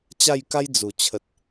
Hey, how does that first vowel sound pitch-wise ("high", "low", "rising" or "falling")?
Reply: falling